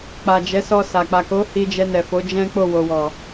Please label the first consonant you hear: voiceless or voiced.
voiceless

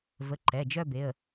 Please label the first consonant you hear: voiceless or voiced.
voiced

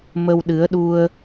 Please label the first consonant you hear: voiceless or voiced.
voiced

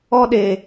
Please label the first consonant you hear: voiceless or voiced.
voiced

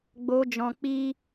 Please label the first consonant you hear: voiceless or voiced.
voiced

